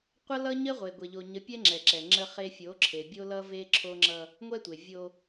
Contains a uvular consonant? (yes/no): yes